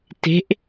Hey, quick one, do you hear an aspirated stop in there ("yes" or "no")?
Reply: no